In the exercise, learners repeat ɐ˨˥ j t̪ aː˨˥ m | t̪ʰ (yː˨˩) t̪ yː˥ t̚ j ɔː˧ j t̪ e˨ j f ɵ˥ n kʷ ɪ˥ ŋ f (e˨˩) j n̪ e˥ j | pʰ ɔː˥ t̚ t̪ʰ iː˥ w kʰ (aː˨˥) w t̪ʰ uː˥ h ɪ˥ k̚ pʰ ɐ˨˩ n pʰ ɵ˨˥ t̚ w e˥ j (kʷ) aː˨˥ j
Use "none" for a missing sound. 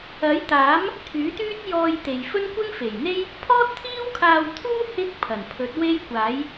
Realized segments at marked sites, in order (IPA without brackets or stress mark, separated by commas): yː˨˥, e˨˩, aː˧, kʷ